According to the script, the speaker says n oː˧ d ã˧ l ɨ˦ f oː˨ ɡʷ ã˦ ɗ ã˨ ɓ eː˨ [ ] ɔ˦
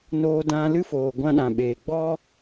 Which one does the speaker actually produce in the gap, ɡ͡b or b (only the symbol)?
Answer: ɡ͡b